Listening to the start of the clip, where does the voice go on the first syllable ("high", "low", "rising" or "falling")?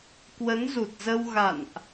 rising